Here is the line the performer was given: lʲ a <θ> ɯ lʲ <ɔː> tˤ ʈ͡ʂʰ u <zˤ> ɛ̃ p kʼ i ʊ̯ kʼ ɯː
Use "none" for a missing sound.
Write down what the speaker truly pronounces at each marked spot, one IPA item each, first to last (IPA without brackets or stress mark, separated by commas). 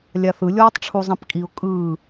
θ, ɔː, zˤ